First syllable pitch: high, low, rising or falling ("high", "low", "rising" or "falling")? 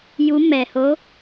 rising